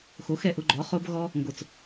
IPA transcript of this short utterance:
xo˨˦xɛ˨ʔʊ˧ɡ͡ǃɔ˨˦ χo˦bɣɔ˦ | ŋɡo˨t͡s

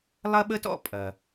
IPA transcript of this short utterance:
lˠɐ˥ɓə˥tɔ̰˥ pʼɐ˩

